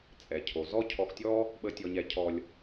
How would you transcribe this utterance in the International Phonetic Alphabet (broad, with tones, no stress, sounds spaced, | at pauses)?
t͡sʼ ɛ˩ cʰ o˩ z ɔ˥ cʰ ɔ˧ x tʲ ɔ˥ | ɓ ə˧ tʲ ɔ˧ ɲ ɛ˧ cʰ ɔ˧ lʲ